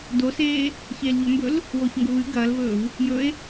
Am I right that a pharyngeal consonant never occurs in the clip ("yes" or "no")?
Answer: yes